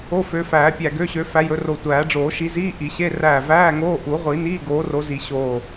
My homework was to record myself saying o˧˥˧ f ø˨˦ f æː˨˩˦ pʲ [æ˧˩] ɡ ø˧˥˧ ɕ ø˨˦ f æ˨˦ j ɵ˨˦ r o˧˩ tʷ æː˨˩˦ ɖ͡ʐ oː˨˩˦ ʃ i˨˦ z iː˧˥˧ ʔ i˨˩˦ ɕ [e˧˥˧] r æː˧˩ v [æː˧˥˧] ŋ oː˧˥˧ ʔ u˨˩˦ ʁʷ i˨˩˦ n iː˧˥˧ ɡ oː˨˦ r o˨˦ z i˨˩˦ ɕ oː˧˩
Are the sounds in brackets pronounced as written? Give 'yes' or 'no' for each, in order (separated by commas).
yes, yes, yes